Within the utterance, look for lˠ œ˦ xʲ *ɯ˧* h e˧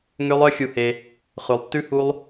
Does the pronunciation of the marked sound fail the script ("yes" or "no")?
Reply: yes